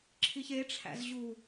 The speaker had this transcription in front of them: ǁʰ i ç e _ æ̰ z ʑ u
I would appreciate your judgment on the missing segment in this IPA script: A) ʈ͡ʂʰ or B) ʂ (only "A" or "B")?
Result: A